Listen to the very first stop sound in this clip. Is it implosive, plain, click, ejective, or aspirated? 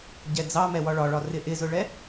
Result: plain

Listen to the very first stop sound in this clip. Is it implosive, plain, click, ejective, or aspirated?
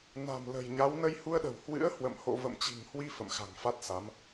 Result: implosive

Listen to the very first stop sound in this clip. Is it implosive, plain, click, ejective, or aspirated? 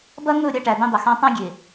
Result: plain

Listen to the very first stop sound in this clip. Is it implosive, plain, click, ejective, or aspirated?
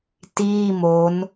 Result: plain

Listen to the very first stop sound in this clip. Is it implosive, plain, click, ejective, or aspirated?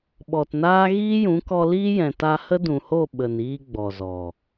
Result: implosive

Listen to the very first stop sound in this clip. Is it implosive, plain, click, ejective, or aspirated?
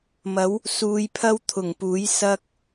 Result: aspirated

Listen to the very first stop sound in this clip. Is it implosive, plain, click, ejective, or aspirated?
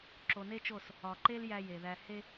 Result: click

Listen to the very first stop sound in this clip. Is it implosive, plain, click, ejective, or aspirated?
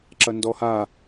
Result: click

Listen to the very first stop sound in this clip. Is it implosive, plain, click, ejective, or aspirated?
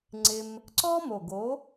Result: click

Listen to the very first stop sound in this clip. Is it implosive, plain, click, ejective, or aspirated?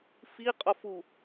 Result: ejective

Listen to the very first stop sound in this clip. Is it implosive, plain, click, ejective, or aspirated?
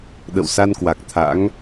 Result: implosive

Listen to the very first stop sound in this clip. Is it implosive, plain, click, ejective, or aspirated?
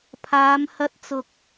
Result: aspirated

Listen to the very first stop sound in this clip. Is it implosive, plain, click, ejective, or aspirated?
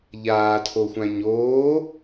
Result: aspirated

